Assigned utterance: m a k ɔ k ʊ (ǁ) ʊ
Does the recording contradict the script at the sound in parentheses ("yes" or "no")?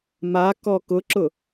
no